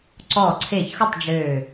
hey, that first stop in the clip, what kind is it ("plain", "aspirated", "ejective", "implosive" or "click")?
click